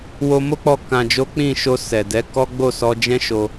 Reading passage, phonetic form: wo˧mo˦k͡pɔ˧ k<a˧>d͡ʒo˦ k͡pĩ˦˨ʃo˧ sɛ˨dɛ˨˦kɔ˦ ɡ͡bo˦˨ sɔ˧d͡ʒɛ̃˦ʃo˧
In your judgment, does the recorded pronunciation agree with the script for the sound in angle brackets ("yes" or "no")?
no